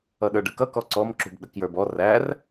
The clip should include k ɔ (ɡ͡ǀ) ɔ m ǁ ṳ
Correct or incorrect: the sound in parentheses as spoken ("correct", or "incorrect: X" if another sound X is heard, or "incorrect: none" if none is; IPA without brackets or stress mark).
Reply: incorrect: ǀ